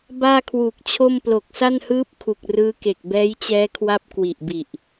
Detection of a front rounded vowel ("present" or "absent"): absent